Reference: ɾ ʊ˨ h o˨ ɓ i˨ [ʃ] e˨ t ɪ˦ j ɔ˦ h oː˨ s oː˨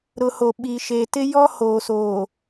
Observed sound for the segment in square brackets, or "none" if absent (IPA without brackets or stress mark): ʃ